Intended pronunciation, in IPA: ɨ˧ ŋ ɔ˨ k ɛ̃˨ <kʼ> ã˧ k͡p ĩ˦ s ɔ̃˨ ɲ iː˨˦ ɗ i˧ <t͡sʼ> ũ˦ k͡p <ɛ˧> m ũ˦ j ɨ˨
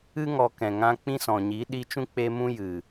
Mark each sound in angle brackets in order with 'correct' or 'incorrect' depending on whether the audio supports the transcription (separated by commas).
incorrect, incorrect, incorrect